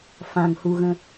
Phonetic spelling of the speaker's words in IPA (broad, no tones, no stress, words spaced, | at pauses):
fãŋhuɣə̃